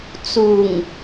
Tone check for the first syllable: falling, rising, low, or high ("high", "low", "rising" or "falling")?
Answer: low